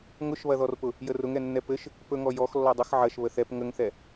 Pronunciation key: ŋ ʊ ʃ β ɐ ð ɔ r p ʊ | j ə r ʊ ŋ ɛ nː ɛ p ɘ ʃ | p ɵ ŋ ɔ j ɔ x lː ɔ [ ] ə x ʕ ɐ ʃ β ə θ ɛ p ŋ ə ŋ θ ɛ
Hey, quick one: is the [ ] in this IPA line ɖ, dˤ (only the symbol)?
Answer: dˤ